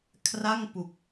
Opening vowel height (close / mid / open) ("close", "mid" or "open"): open